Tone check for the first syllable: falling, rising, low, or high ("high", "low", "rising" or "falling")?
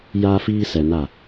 high